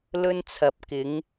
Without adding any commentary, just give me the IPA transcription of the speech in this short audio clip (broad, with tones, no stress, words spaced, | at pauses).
lɵ˧nt͡sʰɐ˨p̚ kɪ˨˧ŋ